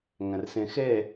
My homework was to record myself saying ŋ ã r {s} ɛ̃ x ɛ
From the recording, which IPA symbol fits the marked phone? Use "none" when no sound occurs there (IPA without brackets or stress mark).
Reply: s